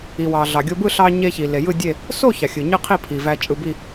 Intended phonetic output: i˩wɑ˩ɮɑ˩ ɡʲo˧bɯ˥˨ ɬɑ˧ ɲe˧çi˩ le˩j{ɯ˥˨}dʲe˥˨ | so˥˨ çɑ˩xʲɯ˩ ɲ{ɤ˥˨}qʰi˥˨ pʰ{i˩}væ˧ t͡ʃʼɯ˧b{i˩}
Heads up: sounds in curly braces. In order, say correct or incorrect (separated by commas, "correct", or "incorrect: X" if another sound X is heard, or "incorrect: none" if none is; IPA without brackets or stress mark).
correct, incorrect: ɯ˥˨, correct, incorrect: i˥˨